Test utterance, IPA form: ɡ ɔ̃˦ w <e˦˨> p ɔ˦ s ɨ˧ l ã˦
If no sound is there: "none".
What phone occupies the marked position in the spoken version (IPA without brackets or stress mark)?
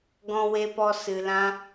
e˦